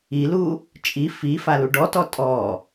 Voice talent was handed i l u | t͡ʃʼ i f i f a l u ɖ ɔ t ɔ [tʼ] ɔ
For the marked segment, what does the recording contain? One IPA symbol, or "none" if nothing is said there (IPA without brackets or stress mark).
tʼ